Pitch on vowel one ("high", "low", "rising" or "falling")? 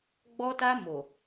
high